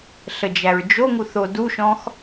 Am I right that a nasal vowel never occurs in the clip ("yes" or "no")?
no